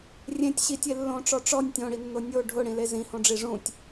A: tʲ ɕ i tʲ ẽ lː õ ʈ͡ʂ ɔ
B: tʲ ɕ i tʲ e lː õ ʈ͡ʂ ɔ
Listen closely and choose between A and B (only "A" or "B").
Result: B